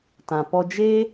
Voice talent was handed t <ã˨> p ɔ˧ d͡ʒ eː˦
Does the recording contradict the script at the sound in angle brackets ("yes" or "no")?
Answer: no